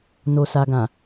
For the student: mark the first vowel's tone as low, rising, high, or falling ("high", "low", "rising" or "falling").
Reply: low